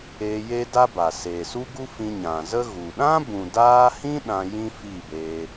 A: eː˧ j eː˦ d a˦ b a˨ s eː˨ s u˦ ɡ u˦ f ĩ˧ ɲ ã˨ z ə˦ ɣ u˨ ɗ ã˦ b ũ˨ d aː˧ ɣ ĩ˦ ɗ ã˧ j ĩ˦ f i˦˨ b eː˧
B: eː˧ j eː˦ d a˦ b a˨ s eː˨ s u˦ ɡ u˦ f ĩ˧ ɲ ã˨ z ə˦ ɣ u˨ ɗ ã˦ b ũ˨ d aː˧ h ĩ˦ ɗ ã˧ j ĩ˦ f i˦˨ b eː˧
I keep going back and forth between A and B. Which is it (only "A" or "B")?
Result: B